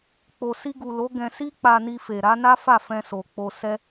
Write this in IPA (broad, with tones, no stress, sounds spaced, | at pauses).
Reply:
k͡p o˨ s i˧ ɡ u˨ l o˨˦ ɡ ɛ̃˧ s i˦ k͡p a˧ n i˧ f e˨ ɾ a˨˦ n a˦ f a˦˨ f ɛ̃˧ s o˨ k͡p o˧ s ɛ˦